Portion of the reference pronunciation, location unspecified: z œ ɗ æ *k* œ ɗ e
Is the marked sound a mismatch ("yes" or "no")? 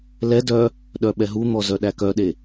no